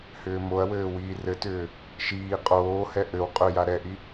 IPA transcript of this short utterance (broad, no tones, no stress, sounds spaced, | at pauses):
h ʏː m o ɐ̯ w ɘː w iː r ɘ t ʏː | ʃ iː qʼ oː h ɛ ʔ ɘ w qʼ ʏ j a ɾ ɛ ʔ i